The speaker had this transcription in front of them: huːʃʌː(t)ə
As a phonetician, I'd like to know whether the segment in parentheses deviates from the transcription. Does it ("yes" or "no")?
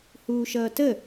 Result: no